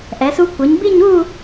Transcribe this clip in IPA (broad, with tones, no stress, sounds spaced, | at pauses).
ʔ ɛ˩˧ s u˧ kʷ ɯ˩˧ ɲ b i˥˧ ɲ u˥˧